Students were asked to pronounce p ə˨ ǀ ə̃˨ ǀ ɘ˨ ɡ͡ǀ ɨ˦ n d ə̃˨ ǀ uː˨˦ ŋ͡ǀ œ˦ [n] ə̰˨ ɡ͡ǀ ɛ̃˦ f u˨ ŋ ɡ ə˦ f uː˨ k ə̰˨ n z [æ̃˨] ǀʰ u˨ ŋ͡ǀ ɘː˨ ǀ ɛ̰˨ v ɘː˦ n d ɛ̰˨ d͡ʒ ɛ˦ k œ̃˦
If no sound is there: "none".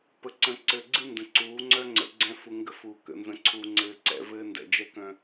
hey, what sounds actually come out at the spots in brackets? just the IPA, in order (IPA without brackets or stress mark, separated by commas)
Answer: ŋ͡ǀ, ə̃˨